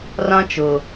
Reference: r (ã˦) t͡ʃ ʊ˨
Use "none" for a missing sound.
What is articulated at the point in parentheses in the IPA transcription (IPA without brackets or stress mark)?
ã˦